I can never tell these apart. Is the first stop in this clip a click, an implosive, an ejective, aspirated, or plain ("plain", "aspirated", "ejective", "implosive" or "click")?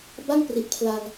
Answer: plain